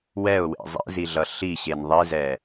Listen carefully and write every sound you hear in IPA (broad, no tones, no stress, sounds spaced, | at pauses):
w ɛ ʊ̯ w ḛ zˤ ḭ z i ɮ ʌ ɬ i ɕ e n ðˤ i z ɛ